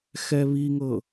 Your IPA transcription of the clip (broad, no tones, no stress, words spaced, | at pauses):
xɛβiŋɤ